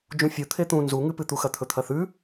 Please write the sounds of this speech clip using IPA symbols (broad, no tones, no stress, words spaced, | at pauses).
d͡ʒũfʲu t̪ʰet̪ũ nzuŋɨpɨt̪u xɐt̪ʰɵt̪ʰɐθʉ